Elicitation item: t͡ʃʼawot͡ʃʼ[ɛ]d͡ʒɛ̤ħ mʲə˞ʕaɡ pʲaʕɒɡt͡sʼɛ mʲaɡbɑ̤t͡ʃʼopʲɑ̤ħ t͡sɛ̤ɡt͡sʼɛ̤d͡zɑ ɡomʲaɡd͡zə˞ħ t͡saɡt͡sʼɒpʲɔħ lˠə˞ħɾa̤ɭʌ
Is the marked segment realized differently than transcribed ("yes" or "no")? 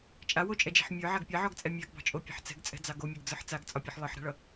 no